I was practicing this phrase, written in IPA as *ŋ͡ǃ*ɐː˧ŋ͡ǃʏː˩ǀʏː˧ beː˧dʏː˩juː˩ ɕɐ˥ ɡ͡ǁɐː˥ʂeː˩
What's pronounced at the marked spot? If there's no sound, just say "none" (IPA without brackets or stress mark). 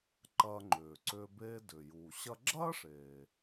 ǃ